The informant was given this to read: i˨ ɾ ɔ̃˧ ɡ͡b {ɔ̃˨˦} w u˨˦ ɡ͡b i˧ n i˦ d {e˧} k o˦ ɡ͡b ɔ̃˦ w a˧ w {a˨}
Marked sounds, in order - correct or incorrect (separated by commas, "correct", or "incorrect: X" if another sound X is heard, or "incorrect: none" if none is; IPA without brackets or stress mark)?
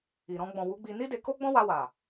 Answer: incorrect: ɔ̃˨, correct, correct